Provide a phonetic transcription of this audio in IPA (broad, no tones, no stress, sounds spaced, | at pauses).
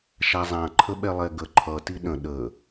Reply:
ʃ a zˤ ã ǃʰ ə ɓ ɛ lˠ ɛ ɡ ə ǃʰ ʌ t i ɗ ə̃ ɗ ə